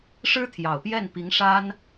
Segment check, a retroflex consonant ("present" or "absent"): present